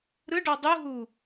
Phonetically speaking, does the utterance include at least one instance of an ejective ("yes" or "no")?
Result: no